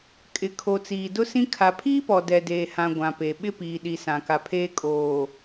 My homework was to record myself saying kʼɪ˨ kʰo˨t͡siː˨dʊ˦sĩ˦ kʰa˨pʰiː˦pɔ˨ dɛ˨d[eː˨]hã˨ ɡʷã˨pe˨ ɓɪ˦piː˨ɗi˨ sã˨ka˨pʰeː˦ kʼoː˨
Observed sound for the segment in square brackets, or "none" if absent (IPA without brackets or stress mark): eː˨